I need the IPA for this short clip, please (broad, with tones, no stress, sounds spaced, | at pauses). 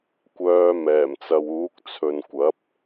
kʷ œː˧ m ɛː˨˩ m t͡s ɐ˨ w uː˨˥ k̚ t͡sʰ ɵ˨ n kʷ ɐ˨˥ p̚